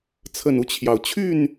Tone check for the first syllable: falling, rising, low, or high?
low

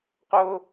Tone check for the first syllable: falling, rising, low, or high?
high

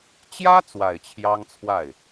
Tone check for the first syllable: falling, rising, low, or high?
high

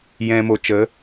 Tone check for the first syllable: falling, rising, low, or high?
low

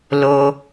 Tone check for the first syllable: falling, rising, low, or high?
low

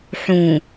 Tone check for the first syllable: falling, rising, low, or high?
low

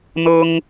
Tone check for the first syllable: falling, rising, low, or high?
high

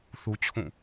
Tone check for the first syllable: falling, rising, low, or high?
high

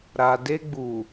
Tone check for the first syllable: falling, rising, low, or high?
low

